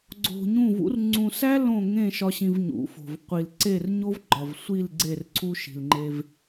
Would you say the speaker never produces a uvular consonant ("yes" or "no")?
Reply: no